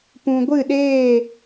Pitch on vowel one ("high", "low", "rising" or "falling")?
low